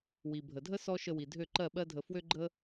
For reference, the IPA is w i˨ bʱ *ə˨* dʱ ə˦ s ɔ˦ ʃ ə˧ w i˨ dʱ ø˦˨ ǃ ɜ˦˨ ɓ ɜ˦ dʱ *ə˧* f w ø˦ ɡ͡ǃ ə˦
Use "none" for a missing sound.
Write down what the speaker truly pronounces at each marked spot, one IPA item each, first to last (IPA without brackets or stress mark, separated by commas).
ə˨, ə˧